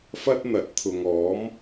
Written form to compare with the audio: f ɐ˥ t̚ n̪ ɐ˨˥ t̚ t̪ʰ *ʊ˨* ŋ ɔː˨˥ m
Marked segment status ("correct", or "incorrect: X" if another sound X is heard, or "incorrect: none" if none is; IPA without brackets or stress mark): correct